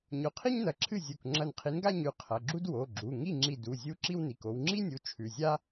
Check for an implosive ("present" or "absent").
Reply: absent